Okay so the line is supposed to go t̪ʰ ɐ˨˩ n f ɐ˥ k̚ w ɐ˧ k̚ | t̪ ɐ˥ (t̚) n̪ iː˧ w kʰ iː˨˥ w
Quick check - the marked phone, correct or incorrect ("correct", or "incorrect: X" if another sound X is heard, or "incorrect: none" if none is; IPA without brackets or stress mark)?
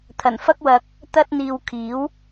correct